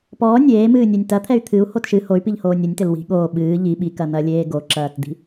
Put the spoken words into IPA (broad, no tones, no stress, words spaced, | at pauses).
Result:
pɔː nʲeːmɨːnʲɛnʲ tɐt̪ʰɛy̯ t̪ʰɨu̯ hotʃɨ hoy̯piʎ hoːnʲɨnʲtɘl wi̤ ɠoː ɓɨː ʎi ɓikɐn̪ɐlʲeː ɡoǁɐːtd̪i̤